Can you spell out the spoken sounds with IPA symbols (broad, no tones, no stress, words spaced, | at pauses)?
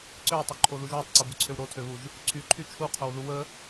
ǀøwtˤoǃʰoðuʒ wøtˤǀobuǀʰøw ɾotʰøβuʒ | ǀʰyǃʰy t͡ʃʰuqʰowðu wə